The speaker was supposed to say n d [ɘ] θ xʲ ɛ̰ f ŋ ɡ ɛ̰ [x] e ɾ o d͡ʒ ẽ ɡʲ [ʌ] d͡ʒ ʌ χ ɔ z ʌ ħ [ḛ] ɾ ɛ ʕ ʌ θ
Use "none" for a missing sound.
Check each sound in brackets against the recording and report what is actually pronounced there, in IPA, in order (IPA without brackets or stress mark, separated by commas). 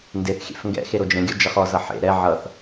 e, x, ɔ, ḛ